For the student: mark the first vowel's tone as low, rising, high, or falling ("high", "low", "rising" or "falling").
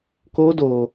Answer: high